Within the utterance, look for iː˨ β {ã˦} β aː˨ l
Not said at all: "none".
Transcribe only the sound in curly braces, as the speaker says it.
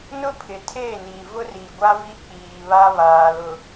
a˦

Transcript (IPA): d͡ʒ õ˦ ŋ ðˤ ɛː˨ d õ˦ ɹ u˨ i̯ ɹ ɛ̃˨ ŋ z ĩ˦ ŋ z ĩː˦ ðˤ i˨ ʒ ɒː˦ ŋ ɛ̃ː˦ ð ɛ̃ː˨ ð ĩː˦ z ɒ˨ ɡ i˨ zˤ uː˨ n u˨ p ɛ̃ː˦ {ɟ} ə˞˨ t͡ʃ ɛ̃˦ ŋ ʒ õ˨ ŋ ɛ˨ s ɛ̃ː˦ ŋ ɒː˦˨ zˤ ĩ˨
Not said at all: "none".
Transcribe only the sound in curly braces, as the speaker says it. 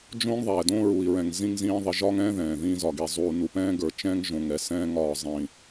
ɡ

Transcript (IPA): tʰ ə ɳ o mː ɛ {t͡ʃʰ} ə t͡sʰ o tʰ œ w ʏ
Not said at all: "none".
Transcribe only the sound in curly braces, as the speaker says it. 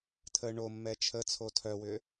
t͡ʃʰ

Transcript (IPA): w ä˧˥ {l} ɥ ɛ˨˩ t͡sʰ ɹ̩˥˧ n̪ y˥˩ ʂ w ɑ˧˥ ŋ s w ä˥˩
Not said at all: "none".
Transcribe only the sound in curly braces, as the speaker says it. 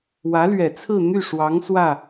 l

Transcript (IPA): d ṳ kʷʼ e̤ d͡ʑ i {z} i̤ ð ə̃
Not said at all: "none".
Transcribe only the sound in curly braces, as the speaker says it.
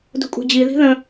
ð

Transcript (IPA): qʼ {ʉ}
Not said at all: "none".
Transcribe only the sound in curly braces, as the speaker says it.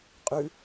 ʉ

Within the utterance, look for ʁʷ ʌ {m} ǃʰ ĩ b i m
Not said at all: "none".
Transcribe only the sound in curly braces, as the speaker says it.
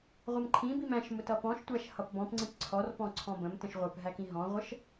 m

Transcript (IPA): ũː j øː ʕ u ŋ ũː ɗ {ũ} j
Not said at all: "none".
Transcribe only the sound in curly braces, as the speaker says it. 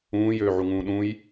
ũ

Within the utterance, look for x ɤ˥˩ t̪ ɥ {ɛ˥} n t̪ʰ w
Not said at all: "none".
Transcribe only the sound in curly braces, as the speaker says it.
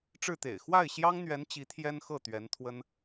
ɛ˧˥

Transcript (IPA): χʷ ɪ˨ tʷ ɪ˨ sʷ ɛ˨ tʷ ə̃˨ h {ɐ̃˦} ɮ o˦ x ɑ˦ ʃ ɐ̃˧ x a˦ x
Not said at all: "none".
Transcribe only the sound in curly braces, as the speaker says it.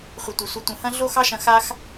ɐ̃˦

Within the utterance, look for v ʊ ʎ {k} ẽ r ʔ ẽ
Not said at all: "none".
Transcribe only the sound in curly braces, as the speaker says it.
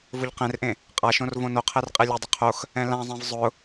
q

